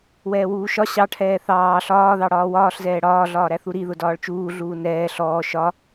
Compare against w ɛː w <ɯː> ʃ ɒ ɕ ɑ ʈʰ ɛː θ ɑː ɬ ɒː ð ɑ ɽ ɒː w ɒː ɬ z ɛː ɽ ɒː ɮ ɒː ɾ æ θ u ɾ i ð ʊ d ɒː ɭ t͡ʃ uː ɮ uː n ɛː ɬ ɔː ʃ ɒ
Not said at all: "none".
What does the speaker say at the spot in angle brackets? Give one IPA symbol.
uː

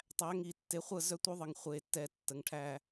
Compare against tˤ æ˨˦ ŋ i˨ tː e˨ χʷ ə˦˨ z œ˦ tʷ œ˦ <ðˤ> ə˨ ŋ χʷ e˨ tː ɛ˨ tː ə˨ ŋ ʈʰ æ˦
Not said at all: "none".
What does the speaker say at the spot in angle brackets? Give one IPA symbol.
ðˤ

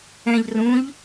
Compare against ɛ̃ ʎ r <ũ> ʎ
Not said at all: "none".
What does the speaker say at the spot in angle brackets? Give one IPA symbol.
ũ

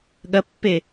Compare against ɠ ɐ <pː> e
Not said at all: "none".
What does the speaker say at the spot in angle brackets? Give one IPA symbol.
pː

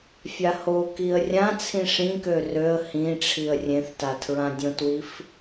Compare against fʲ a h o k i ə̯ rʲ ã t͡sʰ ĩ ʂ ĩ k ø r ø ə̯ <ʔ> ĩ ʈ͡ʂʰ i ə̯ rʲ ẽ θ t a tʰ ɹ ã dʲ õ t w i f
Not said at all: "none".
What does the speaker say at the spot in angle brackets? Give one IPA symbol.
h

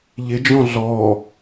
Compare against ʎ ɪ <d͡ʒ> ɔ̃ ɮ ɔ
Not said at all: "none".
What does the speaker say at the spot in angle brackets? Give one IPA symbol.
d͡ʒ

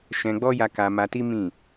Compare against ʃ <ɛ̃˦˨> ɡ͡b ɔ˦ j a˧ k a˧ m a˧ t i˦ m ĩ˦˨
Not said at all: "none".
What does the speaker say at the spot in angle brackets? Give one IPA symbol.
ɛ̃˧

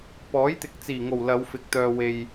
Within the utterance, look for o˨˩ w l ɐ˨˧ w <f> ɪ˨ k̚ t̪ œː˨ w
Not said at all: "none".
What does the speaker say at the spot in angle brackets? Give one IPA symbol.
f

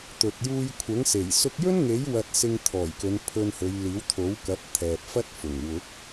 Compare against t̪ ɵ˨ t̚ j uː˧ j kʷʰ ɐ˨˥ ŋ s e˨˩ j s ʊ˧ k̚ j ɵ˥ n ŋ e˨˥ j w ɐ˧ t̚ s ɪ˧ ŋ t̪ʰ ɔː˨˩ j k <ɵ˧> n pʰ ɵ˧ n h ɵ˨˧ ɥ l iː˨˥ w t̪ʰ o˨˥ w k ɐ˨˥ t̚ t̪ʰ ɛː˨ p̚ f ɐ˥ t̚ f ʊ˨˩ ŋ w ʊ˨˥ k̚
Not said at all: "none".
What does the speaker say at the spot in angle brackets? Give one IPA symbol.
ɵ˨˧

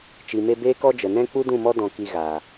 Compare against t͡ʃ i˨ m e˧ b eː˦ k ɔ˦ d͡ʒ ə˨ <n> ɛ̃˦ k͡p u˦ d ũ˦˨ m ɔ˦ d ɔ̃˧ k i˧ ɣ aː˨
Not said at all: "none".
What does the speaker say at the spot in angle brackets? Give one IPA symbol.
n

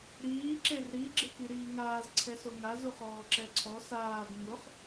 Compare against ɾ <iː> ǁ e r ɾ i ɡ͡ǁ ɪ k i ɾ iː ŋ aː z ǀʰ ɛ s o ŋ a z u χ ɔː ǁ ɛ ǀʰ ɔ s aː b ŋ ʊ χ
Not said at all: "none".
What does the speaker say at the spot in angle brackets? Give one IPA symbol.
iː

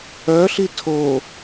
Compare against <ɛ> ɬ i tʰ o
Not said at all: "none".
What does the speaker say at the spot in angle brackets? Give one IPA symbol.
œ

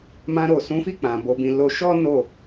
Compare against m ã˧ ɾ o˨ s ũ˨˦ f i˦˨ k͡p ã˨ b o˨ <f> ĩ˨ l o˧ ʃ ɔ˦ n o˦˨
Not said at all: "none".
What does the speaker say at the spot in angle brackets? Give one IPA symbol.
b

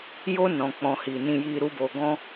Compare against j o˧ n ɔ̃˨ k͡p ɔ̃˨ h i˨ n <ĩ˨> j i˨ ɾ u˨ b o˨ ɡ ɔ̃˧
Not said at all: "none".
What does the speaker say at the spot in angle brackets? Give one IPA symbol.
ĩ˨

